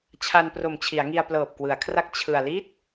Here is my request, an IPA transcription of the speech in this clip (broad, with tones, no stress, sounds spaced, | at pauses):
t͡ɕʰ a˧ n p r o˨˩ m t͡ɕʰ i˩˦ a̯ ŋ i˧ a̯ p l ɤː˨˩ p̚ k w ɯ˩˦ a̯ kʰ r a˦˥ k̚ t͡ɕʰ ɯ˧ a̯ l i˦˥ t̚